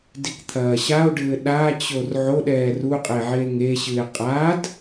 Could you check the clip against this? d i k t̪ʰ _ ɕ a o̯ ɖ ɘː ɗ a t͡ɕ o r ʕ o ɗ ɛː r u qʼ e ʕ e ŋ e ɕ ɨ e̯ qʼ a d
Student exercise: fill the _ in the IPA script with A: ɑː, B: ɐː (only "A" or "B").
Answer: B